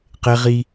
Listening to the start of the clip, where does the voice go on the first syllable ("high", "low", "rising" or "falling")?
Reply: high